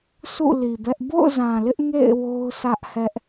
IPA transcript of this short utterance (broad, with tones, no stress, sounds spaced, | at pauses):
sʰ ṵ˦˨ l i˨ b ɛ˦ ʔ b o̰˦˨ ʊ̯ z ã˨ l ɪ˦ ʔ ŋ ḛ˦˨ ɪ̯ w o˦ ʊ̯ s ä˦ ʔ h ɛ˦ ʔ